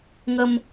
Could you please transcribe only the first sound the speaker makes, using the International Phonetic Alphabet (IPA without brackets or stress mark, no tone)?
ŋ